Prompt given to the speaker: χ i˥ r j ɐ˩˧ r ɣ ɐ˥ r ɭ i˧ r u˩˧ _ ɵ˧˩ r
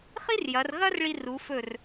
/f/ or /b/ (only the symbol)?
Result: f